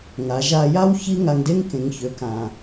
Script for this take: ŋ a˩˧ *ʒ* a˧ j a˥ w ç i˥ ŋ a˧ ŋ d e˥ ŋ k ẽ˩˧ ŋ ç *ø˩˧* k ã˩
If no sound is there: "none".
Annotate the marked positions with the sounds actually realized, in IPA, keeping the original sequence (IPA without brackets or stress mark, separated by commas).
ʒ, ø˩˧